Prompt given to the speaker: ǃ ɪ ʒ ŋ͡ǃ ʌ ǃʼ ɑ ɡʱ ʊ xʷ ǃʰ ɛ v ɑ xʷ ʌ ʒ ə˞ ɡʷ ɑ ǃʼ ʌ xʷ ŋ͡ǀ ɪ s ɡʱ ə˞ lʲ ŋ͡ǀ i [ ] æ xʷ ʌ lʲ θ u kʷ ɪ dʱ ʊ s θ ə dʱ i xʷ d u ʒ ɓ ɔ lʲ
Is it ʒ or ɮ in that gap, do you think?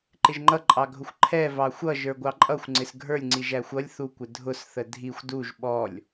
ʒ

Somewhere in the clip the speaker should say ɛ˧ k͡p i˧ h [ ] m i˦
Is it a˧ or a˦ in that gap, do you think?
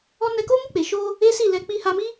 a˧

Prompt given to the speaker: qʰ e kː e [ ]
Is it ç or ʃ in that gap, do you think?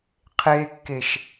ʃ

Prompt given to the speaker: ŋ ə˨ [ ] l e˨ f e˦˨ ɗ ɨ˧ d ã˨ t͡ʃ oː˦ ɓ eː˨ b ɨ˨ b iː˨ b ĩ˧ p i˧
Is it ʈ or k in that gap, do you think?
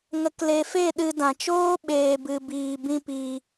k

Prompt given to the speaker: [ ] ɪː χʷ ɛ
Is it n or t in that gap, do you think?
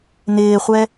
n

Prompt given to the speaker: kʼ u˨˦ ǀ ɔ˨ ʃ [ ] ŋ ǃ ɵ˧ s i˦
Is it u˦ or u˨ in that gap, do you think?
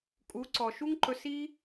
u˦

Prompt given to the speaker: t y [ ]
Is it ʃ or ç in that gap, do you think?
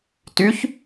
ç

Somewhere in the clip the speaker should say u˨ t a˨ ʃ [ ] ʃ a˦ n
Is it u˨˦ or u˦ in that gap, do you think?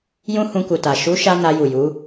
u˨˦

